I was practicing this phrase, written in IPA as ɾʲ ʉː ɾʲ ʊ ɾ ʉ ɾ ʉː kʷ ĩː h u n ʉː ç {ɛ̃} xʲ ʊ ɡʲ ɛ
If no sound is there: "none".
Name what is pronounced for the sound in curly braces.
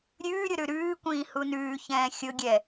ɛ̃ː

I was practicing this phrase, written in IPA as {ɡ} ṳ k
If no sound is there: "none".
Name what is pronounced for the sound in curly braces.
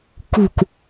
k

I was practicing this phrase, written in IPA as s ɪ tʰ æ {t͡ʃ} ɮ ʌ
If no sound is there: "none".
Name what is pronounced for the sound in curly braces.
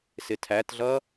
t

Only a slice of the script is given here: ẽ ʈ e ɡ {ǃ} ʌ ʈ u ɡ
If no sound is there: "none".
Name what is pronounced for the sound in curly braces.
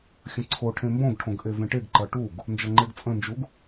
ǃ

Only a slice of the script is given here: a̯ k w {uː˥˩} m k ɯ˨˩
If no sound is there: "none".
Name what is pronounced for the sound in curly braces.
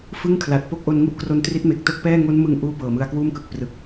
uː˥˩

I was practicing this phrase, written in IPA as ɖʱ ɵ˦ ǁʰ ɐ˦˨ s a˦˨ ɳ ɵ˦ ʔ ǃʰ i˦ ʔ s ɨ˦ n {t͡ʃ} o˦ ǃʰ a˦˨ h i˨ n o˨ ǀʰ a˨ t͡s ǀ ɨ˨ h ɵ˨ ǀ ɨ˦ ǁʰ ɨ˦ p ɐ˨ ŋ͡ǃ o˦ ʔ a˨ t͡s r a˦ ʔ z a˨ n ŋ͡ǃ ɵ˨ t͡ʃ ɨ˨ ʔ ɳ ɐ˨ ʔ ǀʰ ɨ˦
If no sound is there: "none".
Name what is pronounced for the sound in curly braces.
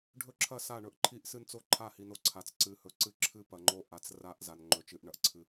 t͡s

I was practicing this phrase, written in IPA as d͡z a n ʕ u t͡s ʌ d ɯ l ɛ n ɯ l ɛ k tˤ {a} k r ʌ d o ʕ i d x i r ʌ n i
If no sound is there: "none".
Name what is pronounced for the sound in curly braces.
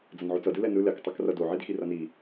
ʌ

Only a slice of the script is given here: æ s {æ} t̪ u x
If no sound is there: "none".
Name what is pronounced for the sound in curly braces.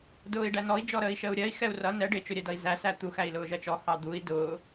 æ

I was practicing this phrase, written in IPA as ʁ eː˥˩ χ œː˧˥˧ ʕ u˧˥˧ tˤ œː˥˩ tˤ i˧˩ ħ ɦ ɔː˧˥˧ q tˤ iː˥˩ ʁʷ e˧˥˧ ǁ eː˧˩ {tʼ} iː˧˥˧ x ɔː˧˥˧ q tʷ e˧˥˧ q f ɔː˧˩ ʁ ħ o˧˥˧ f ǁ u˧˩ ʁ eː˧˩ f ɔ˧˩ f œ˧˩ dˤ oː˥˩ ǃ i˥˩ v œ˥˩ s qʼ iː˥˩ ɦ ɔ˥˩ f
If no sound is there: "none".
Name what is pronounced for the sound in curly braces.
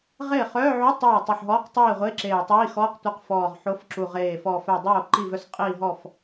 tˤ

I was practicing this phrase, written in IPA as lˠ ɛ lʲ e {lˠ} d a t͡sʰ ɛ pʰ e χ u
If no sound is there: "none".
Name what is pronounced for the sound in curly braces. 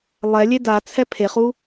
none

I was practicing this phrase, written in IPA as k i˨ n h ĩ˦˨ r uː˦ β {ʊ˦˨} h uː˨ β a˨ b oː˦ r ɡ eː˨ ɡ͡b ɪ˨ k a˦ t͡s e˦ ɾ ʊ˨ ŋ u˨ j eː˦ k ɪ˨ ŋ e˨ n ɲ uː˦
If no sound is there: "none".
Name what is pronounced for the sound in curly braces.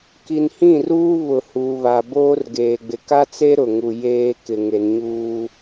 ʊ˨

